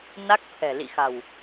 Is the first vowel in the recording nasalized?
no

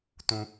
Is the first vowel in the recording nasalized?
yes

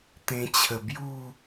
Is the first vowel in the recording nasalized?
yes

